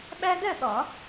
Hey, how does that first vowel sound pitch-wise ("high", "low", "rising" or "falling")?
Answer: high